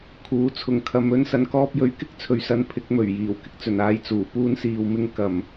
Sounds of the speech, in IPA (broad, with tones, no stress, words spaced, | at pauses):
kʰuː˨˥t͡sʰʊ˨ŋkʰɐ˧mɵ˥n sɐ˨nkɔː˧p̚jɵ˨˥ɥ kɪ˥k̚t͡sʰɵ˨ɥsɐ˨˧n pʰɪ˨˥k̚ mɵ˨˩ɥ jiː˨˩w kɪ˥k̚t͡sɵ˨˩naː˨˧j t͡suː˨˩puː˧nsiː˨wmɪ˧ŋ kɐ˨˩m